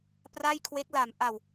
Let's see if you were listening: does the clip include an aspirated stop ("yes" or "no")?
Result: yes